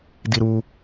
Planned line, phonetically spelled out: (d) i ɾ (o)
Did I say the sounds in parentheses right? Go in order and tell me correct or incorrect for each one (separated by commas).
correct, incorrect